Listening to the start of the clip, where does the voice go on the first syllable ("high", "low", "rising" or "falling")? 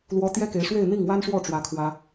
high